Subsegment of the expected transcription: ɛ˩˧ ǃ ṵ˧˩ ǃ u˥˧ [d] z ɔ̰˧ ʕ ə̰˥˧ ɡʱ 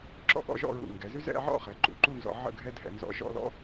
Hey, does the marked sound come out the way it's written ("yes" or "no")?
no